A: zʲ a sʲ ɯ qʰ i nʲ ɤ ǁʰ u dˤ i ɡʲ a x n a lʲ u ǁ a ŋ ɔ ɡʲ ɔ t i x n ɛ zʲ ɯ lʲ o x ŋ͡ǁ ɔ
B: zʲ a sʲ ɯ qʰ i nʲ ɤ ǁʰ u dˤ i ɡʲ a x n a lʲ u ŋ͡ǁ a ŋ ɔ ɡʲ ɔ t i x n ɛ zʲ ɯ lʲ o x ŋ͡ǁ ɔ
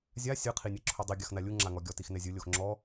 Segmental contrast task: B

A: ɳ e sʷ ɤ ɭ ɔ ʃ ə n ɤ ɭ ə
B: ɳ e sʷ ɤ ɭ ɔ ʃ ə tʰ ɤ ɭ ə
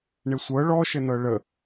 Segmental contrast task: A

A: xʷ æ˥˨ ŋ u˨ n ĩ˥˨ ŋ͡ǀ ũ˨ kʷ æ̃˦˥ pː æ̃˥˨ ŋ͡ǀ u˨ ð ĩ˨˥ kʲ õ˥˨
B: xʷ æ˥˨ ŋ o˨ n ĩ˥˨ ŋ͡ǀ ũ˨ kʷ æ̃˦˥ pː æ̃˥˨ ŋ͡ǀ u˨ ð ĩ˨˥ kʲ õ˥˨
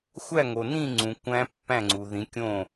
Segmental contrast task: B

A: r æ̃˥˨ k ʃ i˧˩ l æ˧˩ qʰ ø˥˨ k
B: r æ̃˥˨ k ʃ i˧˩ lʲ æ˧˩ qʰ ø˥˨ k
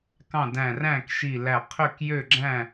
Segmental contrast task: A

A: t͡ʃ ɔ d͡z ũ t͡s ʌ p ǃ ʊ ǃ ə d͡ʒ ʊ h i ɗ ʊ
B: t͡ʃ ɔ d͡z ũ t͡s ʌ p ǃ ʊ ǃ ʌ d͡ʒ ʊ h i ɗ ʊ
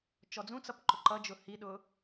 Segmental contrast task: B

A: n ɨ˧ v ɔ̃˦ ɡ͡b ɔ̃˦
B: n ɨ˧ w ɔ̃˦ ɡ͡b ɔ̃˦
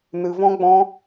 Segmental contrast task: A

